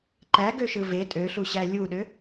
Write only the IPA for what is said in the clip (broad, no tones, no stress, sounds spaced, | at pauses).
ǃ æ ɡ ø ʃ ɯ v e tʼ ø ɬ u ɕ æ lʲ u ɗ ø